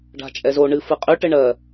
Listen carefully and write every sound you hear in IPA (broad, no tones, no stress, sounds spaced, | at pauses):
ɖ a̤ t͡ʃʼ ɛ z o ɳ ɨ f ɨ qʼ y ʈ ɘ ɳ ɜ